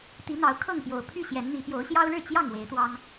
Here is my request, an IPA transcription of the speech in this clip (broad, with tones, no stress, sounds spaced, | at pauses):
t̪ i˨˦ n̪ ɑ˨˦ ʊ̯ kʰ ɤ˥˨ ŋ p j o˨˩ ʊ̯ pʰ y˥˨ ɕ j ɛ˨˦ n n̪ i˨˦ p j o˨˦ ʊ̯ ɕ j ɑ˦ ʊ̯ ɻ ɻ̩˥˨ t͡ɕ j ɑ˥˨ ŋ w e˨˦ ɪ̯ t̪ w ɑ˦ ŋ